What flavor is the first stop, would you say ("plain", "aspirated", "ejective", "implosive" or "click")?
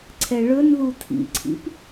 click